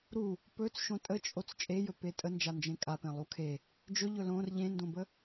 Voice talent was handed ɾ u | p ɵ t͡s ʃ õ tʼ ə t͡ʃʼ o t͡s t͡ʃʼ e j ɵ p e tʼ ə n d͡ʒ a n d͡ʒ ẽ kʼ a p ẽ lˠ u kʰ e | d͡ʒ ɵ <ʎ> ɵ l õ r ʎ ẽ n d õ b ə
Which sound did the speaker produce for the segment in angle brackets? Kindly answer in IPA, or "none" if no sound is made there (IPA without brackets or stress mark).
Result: ʎ